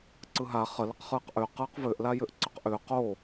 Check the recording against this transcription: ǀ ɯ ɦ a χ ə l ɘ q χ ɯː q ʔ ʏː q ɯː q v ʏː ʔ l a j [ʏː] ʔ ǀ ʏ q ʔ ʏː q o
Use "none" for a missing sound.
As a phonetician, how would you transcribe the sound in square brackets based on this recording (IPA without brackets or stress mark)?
ʏ